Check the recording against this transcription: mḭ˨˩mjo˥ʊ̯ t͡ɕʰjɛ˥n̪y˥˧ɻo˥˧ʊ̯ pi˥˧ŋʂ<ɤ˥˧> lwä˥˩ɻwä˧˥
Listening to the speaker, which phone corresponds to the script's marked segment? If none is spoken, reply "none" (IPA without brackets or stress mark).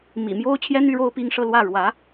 ɤ˥˧